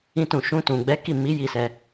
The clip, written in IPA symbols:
ĩ˦tũ˦˨ ʃũ˧tũ˨ɡ͡bɛ˨˦ ki˦˨mi˨˦ ji˦˨sɛ˧

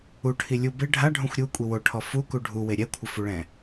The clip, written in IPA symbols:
uʈʰi lʲu bɪ ɖʱaɖʱũxʷ ɾʲukʷʼi woʈʰɔ fuku ɖʱuwe ɾʲɛkʷʰɪfuɭɛ̃

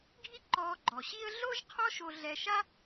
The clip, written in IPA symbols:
ɡʱi˥ǃɔː˧ ɡ͡ǃɔ˩ɕi˥ə̯ ɮo˥ʒqʰɔ˥ʃo˧ ɮɛ˧ʃa˥

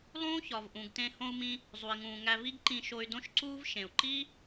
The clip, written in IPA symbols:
lˠũː˥çɒ˩v ʔũ˩ɡtẽ˧ hõ˧u̯mĩ˧ | zˤu˩i̯ŋũː˩ ŋæ˧vi˥ɡǃĩ˧ʃo˧y̯ dõ˥ʃǀuː˥v ʃẽ˩u̯ǃi˥

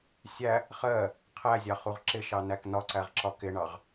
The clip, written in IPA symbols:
sʲæ | χɜ | qʰæzʲɑ χuʁǁɪʃɑ næknɒǀæʁ ǁɒkɪɳɑʁ

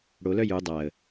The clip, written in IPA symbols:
ɽolœ ju dˤaə̯

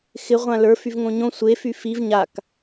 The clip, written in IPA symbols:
xɪ ʁʷãlə˞ fyvŋõɲõ sʷe fyfiv ɲak

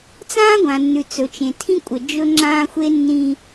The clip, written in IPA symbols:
t͡sãː˦ɡʷã˨nːʉ˨ t͡sɵ˨t͡ʃẽ˨tʰĩ˦kʷʼə˨ d͡ʒɵ˦ŋ͡ǁãː˦ xʷe˦nːĩ˦

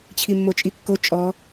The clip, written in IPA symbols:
t͡ɕʰimːot͡ʃʼikːo t͡ʃʼɔ

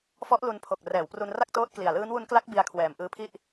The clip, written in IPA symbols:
fɔ˦˥ʔlu˧npʰo˨˩k̚ rɛː˩˦wpru˧nra˥˩k̚toː˦˥t̚ kli˨˩a̯lɯː˦˥nwu˦˥n kla˦˥k̚ bi˧a̯kʰwɛː˨˩m ʔɯː˧pʰi˥˩ʔ

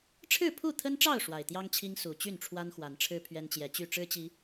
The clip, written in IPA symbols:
ʈ͡ʂʰɻ̩˥˨pʰu˥˨t̪ʰə˦nʈ͡ʂɑ˥˨ʊ̯ ʂwa˨˩ɪ̯t̪jɑ˦ŋt͡ɕʰi˦ŋ su˨˩ t͡ɕy˥˨nʈ͡ʂʰwa˦nxwa˨˦nʈ͡ʂʰɻ̩˦ pʰɥɛ˦nt͡ɕjɛ˨˦t͡ɕy˥˨ ʈ͡ʂɻ̩˦t͡ɕi˨˦

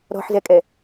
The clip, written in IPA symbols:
ɾɔ̤ħzɛkʼɛ

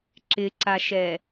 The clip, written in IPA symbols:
ǁɪǀaʃɛ

